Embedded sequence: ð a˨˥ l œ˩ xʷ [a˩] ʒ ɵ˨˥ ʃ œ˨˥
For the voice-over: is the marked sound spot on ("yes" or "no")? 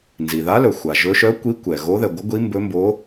yes